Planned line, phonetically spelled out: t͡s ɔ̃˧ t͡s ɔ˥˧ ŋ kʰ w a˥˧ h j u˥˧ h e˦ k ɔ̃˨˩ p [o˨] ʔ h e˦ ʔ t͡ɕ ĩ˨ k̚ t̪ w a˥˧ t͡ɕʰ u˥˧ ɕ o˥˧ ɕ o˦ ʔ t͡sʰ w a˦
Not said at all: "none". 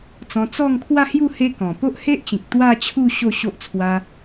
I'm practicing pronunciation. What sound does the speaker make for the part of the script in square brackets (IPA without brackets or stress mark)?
o˦